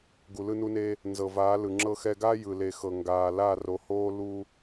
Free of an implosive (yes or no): yes